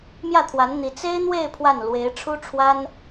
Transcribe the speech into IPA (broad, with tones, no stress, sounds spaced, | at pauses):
m j ä˥˩ t̪ʰ w a˧˥ n n̪ i˧˥ t͡s e˥ ɪ̯ n̪ w e˥˧ ɪ̯ pʰ w a˥˩ n l w e˧˥ ɪ̯ ʈ͡ʂʰ u˥ ʈ͡ʂʰ w a˥ n